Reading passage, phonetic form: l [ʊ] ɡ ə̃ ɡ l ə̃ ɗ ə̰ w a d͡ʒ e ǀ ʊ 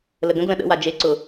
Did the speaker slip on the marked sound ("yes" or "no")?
yes